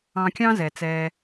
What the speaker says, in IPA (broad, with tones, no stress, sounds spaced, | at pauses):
ɑ̃˧ kʲ ɑ̃˥ z ɛ˩ t͡s ɛː˧